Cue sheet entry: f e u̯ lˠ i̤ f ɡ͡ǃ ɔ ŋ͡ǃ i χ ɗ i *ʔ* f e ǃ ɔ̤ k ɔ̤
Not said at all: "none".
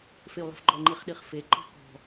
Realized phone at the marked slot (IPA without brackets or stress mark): χ